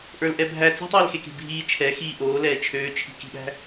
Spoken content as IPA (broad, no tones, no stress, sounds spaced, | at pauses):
ʔ ə˞ l ʔ ɛ bʱ æ t͡s e̤ tˤ ɛː l x e k e̤ bʱ iː t͡ʃʰ ɛ x iː ʔ oː l ɛː t͡ʃʰ øː t͡ʃʰ i̤ k i̤ ɓ æ̤